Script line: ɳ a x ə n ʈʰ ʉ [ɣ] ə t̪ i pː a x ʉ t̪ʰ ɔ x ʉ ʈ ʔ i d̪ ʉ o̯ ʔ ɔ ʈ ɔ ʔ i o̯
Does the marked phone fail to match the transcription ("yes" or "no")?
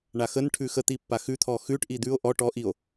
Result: yes